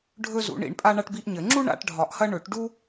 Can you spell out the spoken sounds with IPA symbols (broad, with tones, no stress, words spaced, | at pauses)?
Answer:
ɖʱɵ˥zṵ˨˩˦ɳḭ˨˩˦ɳpʼa˥ ɳa˥ʈbi˥ʔɲɘ˨˩˦ ŋ͡ǁu˥ ɳa̰˨˩˦ʈɖʱɒ˨˩˦ʔhɐ˥ ɳɵ˨˩˦ʈ ɖu˥